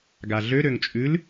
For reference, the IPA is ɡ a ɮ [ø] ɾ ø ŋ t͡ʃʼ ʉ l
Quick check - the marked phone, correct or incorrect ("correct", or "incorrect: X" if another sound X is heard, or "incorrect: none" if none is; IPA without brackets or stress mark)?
correct